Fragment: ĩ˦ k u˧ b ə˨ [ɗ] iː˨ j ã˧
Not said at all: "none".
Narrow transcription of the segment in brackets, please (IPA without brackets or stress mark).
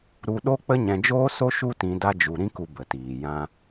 t